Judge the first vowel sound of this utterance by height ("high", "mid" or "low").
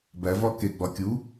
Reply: low